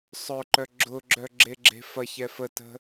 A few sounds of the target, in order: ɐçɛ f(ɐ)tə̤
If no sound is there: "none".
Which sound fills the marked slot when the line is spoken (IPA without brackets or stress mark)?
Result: ə